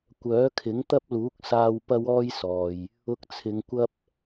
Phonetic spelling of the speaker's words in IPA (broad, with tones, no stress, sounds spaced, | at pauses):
kʷ œː˨˥ kʰ ɪ˨˥ ŋ t̪ ɐ˥ p̚ l uː˨˥ k̚ s aː˧ w p ɐ˥ w ɔː˥ j s ɔː˨ j | ʊ˧ k̚ t͡sʰ ɪ˨˧ ŋ kʷ ɐ˥ p̚